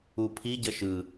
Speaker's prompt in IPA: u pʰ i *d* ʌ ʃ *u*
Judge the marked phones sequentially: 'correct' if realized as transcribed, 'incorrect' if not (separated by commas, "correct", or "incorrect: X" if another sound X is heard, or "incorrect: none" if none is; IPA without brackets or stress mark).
incorrect: ɟ, incorrect: ɯ